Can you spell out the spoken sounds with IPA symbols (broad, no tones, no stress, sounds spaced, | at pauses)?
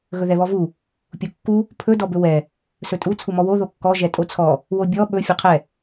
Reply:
ɣ ɵ ð ɛ β ɔ v u | pʲ u kː u | pʰ ɵ d ɔ b ɵ w ɛ | s ɵ tʼ u t͡sʰ u m ɔ w o ð o kː ɔ ʒ ɛ tʼ o t͡sʰ ɔ | w o bʲ ɔ ɓ ɵ fʲ ɵ qʰ ɛ